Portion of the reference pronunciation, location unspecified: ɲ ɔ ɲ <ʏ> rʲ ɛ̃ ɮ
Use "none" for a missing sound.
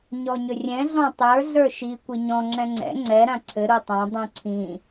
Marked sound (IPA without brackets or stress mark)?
ʏ